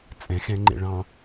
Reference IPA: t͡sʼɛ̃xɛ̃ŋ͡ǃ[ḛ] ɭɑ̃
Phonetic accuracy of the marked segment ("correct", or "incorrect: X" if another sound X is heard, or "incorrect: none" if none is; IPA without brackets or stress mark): correct